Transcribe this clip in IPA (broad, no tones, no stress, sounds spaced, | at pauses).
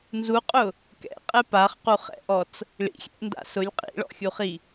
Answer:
n z u qʼ ʊ | k ɛ̰ qʼ ɛ p a χ q u χ ɛ̰ ʔ ɔ t͡s | ɭ ḭ xʲ ɛ̰ ʔ n d a̰ s ʊ lʲ qʼ ḭ ɭ ɔ̰ xʲ u χ i